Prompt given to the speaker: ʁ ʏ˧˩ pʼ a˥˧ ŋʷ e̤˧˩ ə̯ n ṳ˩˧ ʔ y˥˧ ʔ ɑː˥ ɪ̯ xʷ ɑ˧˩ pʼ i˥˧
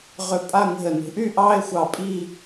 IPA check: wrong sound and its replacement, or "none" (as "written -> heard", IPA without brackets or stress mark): none